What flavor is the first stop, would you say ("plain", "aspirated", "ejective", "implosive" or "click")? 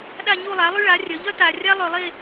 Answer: implosive